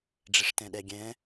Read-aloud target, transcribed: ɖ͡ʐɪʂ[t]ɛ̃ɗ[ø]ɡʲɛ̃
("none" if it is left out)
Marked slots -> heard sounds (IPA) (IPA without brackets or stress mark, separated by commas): t, ɛ